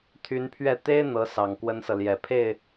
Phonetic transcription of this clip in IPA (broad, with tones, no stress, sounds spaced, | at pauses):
t̪ʰ y˧˥ n pʰ ɥ ɛ˥˩ t̪ e˥ ɪ̯ n̪ ɤ˧˥ s ɑ˨˩ ŋ k w ə˥ n s ɤ˨ l j ɛ˨˩ pʰ e˥˩ ɪ̯